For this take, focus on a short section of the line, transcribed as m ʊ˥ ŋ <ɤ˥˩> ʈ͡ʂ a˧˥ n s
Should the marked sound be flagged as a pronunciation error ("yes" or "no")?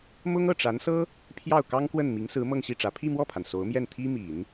no